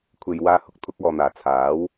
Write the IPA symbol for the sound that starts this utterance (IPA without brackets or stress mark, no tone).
kʷʰ